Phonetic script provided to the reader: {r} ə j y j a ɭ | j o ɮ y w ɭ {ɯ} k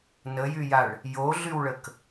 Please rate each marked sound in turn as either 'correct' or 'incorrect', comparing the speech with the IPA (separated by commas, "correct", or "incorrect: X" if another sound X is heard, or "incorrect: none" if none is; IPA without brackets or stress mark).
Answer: incorrect: n, incorrect: ə